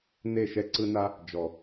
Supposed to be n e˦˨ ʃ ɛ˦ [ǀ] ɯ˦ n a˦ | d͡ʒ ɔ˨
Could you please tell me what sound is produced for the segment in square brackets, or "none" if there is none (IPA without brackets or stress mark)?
ǀ